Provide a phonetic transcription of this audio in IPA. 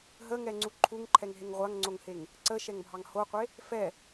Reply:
ɦ ə ŋ ɛ ŋ͡ǀ u ǃʰ u ŋ ǃʰ ɛ ŋ ɦ e ŋ ʁʷ a ŋ ŋ͡ǀ o ŋ h e ŋ | ǀ ə ʃ ɛ ŋ bʱ ɑ ŋ h o qʷ e | f ɛ

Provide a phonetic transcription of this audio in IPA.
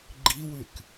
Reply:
ɡ͡ǃ i w ʉ k

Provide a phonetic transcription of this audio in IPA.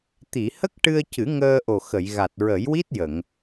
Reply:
t̪ i˨˩˨ h ə˦˥ k̚ ʈ ɨ˧ ə̯ c ɨ˨˩˦ ŋ əː˧ ʔ o˨˩ x ə˨˩˨ j ɣ a˨˩ t̚ ɹ ə˨˩˦ j w i˦˥ t̚ j ə˨˩˨ ŋ

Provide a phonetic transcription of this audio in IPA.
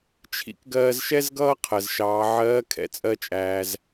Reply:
t͡ʃʰ ḭ˥ k ɡ ɜː˧ z ʃ ɛ˥ z ɡ ʌː˥ qʰ ɜ˩ z ʃ ɑː˩˧ ʕ ɜː˧˥ kʰ ɛ̰˩ t͡sʼ ɜ˧ t͡ʃʼ æː˩ z

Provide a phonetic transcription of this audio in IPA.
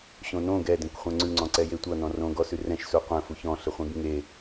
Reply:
ɕ õ n õ ɡ ɛ d ɛ̃ kʷ χʷ ɛ̃ ŋ͡ǀ ʉ ŋ͡ǀ ɔ̃ ǀ ɛ j e tʷ ʌ n ɔ̃ r õ ɡ ɔ s ʉ r ɛ̃ ʃ s u qʷ ɛ̃ f u ç ɔ̃ ɬ ɘ χʷ ẽ ɡ ŋ e

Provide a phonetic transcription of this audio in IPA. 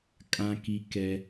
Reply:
kʼ ã˦ k i˦ k ɛ˦

